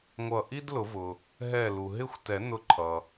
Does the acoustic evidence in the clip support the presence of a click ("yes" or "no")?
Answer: yes